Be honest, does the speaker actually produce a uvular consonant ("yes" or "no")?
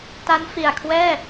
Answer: no